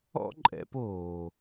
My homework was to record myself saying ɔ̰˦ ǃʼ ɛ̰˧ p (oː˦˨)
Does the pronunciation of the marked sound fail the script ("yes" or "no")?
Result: yes